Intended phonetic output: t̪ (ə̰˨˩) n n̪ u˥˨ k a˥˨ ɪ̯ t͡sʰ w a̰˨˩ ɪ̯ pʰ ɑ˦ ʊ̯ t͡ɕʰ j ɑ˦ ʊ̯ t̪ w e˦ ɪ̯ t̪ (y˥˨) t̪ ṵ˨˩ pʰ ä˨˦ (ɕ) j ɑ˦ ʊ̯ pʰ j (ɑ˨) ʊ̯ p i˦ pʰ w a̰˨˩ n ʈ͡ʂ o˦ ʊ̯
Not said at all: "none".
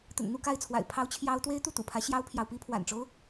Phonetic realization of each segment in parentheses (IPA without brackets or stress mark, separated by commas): ə̰˨˩, u˥˨, ɕ, ɑ˨